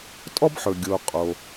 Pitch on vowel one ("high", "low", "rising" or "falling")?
high